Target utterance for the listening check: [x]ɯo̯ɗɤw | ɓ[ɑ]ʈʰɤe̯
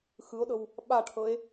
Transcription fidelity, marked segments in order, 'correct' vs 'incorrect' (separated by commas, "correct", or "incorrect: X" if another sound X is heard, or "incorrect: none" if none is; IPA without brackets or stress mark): correct, incorrect: a